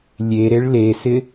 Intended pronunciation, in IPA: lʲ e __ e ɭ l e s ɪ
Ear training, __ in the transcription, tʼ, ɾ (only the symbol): ɾ